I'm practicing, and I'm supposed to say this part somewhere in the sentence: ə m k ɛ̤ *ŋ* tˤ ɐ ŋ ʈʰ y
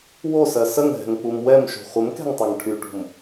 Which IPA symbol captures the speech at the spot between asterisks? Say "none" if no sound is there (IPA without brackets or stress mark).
ŋ